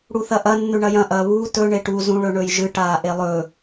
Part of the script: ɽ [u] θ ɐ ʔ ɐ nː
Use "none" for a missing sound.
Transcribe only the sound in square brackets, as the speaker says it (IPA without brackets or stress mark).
u